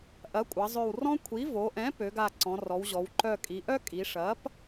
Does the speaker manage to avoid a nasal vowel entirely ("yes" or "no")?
no